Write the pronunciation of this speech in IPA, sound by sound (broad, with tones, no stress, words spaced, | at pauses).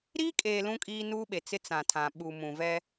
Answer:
ɾiː˦kʼeː˨ lũ˦kʼiː˦nuː˦ɓe˨ t͡sɪ˦ t͡sã˨tʰã˨ ɓu˨mũ˨vɛ˦